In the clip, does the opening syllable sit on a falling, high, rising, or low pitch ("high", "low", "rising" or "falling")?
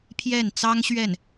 falling